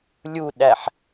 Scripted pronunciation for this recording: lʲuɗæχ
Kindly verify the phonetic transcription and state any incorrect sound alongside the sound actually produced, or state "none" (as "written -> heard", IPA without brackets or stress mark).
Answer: χ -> ħ